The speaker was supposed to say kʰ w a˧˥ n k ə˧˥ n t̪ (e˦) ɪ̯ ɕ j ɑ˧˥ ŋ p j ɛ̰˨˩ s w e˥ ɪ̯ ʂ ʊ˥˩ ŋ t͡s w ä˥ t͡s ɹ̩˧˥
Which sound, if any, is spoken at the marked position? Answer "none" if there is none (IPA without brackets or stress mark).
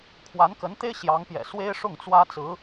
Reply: e˥